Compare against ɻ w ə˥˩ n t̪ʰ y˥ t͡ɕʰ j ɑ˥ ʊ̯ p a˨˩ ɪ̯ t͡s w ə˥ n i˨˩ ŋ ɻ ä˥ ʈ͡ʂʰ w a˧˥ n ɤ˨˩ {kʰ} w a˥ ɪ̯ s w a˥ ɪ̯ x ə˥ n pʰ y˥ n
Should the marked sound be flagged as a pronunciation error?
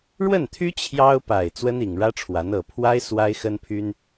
yes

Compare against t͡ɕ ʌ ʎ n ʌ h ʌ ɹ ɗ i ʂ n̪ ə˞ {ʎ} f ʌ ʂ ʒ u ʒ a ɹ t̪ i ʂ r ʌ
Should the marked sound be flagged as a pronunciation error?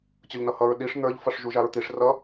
no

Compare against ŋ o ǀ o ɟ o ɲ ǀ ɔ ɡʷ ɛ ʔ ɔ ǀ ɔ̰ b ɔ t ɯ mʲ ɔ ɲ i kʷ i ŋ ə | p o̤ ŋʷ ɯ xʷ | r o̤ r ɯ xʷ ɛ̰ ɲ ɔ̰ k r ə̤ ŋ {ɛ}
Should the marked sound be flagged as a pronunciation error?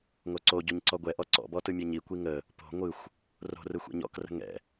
yes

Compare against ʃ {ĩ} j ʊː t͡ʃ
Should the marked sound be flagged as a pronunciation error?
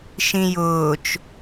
no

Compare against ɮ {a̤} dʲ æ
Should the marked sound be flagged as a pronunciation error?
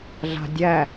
no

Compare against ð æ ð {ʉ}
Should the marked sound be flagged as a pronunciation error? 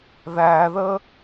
yes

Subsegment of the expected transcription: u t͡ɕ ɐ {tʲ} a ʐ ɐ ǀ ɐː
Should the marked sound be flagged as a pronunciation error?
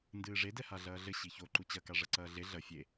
yes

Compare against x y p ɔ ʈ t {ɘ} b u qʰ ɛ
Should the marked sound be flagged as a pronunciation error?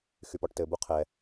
no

